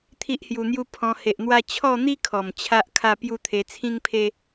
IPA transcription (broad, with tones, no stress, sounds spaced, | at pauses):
t̪ʰ i˦ ʔ h j u˧ n̪ j u˦ pʰ ɔ̃˧ h e˨ ʔ n̪ w a˧ t͡ɕʰ ɔ˥˧ n̪ i˦ kʰ ɔ˨˩ m t͡ɕʰ a˦ ʔ kʰ a˥˧ p j u˦ t̪ʰ e˧ t͡sʰ ĩ˦ ŋ pʰ e˦